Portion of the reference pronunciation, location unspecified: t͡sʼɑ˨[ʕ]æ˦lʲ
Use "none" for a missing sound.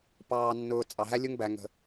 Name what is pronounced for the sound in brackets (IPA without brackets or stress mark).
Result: ɦ